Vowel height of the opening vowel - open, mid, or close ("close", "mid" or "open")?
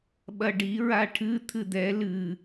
open